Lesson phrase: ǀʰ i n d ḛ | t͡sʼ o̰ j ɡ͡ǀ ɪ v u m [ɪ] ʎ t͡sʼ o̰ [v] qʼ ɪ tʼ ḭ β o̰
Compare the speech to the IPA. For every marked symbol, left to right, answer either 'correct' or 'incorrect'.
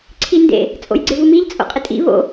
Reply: incorrect, incorrect

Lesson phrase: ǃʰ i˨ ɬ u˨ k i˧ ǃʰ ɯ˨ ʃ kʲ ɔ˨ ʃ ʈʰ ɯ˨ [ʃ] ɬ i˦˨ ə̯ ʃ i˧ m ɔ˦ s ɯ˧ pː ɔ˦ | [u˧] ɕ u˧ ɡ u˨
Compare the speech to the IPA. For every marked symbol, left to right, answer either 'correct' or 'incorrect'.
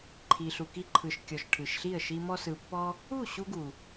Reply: correct, incorrect

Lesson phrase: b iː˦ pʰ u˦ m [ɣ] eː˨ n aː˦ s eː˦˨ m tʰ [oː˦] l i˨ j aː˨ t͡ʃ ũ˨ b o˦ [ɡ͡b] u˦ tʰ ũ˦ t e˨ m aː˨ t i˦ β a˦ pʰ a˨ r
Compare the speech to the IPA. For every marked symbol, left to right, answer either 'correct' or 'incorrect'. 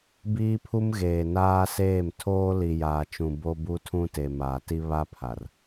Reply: correct, correct, incorrect

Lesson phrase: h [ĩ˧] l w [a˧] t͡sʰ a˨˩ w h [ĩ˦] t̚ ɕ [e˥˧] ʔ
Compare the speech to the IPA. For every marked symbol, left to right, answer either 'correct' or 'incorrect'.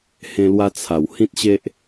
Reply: incorrect, correct, correct, incorrect

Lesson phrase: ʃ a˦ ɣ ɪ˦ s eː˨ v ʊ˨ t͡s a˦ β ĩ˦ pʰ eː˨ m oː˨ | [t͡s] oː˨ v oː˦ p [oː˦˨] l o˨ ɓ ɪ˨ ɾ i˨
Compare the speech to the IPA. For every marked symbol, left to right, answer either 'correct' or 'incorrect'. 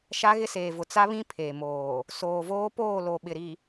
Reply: incorrect, correct

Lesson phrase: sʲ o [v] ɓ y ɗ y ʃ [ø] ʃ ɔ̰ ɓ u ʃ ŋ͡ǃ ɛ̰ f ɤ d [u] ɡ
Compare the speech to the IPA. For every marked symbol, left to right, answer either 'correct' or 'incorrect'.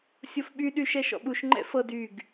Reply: incorrect, incorrect, incorrect

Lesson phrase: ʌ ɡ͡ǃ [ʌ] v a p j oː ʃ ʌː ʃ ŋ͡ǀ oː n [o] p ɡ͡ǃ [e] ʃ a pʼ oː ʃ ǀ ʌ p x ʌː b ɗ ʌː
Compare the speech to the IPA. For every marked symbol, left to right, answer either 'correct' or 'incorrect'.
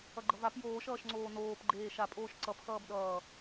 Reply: correct, incorrect, incorrect

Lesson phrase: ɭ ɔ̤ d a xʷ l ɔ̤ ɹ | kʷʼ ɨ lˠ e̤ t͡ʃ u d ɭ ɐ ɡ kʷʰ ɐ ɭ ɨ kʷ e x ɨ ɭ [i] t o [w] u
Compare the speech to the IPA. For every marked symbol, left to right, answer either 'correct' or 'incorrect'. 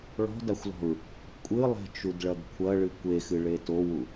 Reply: incorrect, correct

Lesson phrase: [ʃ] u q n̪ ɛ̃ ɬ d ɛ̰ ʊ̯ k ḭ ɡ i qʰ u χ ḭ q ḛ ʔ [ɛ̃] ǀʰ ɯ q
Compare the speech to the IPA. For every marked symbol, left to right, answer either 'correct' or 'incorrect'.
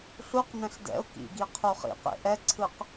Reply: incorrect, incorrect

